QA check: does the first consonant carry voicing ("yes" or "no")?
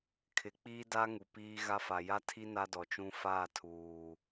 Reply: no